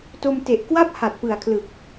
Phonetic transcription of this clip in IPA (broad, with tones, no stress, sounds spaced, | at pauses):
t o˧ m t e˨˩ ʔ k w a˥˩ p̚ h a˨˩ t̚ p ɯ˨˩ a̯ kʰ l ɯ˨˩ k̚